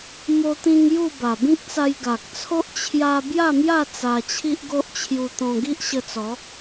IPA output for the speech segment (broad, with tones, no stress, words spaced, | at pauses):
mo˧t̪ĩ˧ŋ ju˥˧ba˨˩ bĩ˦k̚t͡sa˧j ɡa˨k̚t͡sʰo˦ʔ t͡ɕʰja˧ bja˥˧mja˥˧ t͡sa˧t͡ɕʰi˦ʔɡo˦ʔ t͡ɕʰju˧t̪ɔ̃˧ ɡi˦ʔɕə˧t͡sɔ˨˦